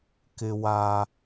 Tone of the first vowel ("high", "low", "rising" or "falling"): high